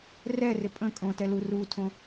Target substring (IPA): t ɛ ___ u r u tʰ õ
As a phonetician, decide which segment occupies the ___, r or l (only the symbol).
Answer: l